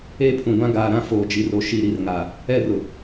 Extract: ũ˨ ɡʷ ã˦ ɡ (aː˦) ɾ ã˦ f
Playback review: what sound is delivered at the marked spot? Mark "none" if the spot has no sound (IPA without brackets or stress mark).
aː˨